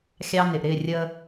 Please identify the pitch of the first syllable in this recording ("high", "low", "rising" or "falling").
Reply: high